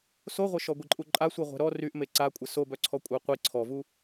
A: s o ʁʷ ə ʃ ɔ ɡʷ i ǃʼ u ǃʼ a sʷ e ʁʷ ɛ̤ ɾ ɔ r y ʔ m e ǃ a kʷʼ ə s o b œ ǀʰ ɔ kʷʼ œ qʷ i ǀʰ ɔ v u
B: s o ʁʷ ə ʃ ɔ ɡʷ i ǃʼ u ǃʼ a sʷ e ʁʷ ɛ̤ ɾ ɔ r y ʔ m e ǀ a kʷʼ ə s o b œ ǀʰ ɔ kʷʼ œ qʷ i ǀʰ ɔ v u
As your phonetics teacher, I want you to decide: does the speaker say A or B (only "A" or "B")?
B